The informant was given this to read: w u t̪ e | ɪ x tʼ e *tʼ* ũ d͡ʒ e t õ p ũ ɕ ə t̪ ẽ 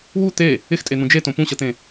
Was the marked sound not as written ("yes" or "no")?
yes